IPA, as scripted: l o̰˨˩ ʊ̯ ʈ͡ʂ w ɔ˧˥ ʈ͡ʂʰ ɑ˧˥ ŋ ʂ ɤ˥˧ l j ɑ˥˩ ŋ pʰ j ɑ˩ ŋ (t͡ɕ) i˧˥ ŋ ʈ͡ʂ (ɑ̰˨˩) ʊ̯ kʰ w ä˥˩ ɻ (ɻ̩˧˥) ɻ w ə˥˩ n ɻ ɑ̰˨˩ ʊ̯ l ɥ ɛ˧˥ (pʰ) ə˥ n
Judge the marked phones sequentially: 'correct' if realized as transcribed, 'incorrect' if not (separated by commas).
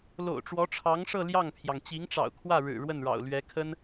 correct, correct, incorrect, incorrect